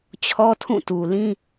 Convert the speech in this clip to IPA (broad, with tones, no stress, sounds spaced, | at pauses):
t͡ɕʰ ɔ˦ tʰ ũ˦˨ t u˨ l ĩ˦